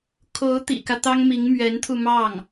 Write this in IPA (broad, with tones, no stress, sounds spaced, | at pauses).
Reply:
kʰ o˧˥ ʊ̯ t̪ ḭ˨˩ k ä˦ t̪ ɑ˥ ŋ m i˧˥ ŋ m ɥ ɛ˧˥ n t̪ʰ u˧ m ɑ˥˩ ŋ